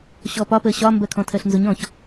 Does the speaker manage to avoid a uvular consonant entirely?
yes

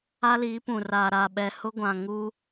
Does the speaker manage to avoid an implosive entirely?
no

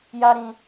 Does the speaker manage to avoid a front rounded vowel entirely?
yes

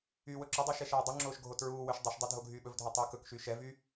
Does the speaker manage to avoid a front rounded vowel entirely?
no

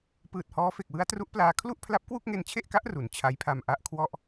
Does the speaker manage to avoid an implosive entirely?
yes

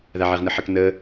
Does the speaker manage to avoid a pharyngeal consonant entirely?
no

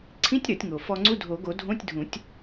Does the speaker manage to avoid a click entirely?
no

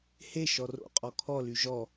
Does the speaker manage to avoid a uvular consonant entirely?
no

